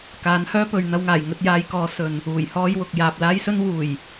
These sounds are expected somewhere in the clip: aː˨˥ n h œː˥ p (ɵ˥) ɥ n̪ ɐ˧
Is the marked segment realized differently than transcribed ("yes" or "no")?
yes